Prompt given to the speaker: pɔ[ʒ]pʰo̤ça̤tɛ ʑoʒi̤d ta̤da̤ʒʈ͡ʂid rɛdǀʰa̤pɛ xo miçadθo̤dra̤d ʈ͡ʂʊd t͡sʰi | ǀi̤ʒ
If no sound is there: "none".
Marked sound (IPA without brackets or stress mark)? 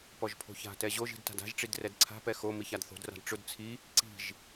ʒ